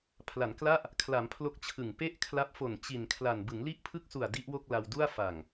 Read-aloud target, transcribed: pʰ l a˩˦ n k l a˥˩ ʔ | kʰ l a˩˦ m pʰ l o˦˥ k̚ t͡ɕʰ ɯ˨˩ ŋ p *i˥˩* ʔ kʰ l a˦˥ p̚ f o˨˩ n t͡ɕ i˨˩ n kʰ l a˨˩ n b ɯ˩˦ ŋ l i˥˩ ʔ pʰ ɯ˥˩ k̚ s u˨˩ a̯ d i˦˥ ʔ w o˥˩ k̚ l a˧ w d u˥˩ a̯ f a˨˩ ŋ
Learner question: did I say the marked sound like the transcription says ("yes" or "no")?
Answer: no